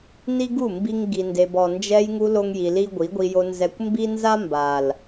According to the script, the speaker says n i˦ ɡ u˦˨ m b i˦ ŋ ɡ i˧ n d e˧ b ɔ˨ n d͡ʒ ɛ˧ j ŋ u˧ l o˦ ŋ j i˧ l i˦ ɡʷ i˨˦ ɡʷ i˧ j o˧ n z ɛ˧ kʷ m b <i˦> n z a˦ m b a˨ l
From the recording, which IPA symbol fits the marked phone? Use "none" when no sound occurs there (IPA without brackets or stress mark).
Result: i˦